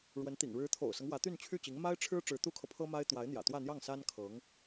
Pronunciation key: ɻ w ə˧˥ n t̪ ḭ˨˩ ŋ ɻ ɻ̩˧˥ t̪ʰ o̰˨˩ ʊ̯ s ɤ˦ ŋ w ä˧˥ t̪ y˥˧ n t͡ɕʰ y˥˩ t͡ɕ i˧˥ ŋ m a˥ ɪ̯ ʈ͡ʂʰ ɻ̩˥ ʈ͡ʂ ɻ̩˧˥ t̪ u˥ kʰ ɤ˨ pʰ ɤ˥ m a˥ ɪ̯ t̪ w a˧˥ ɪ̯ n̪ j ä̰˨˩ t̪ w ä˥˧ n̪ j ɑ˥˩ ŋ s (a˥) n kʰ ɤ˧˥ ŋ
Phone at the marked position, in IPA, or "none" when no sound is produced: a˥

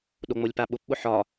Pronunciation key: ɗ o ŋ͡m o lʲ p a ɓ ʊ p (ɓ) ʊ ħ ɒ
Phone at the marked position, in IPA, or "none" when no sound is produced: ɓ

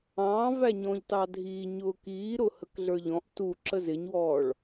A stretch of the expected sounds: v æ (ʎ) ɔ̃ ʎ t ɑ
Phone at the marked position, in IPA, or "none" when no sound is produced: ɲ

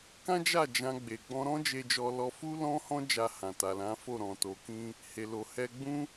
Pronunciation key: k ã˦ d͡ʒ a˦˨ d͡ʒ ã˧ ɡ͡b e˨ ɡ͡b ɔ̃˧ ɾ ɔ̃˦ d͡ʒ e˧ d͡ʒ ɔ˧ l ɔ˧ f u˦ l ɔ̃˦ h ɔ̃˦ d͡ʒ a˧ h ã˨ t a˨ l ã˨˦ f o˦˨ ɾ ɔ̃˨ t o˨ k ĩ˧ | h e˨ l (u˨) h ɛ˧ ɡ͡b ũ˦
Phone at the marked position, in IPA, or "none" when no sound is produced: o˨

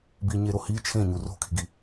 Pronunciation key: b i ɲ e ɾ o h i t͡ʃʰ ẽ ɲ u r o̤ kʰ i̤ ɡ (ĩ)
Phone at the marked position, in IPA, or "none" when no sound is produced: i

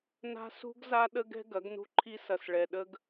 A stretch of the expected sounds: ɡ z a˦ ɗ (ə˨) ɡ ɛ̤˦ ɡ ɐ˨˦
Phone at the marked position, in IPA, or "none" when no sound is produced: ə˦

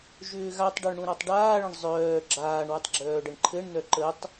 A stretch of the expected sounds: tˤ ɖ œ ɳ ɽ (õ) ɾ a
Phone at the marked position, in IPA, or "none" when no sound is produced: ũ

